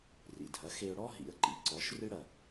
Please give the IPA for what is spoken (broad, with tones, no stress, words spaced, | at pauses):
rḭ˩dʱɐ˩˥ xe˧ʊ̯ɽɔ˥ ɦḭ˩˥ə̯ǃḭ˩˥ ǀɔ˩˥ʃrɨ˥ɽɐ˩